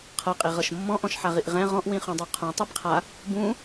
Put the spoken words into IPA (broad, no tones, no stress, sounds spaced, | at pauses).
qʰ ɤ qʼ i ʁ ɤ ʃ mː ɔ̃ ʔ ɔ̃ ʃ ħ a ʁ i ʔ ʁ ɛ̃ ʁ ɔ̃ ʔ w ĩ χ ũ dˤ ɤ qʰ ũ tˤ i b qʰ a | b ũ